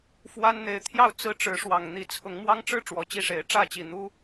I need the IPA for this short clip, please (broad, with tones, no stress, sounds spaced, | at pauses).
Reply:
f w a˦ n n̪ e˨˩ ɪ̯ t̪ʰ j ɑ˥˨ ʊ̯ t͡s ɹ̩˦ ʈ͡ʂ ɻ̩˨˦ ʂ w ɑ˨˩ ŋ n̪ i˨˦ t͡sʰ ʊ˨˦ ŋ m w ɑ˦ ŋ ʈ͡ʂ ɻ̩˥˨ ʈ͡ʂ w ɔ˨˦ t͡ɕ i˦ ʂ e˨˦ ɪ̯ ʈ͡ʂ ä˥˨ t͡ɕ i˨˩ n̪ u˦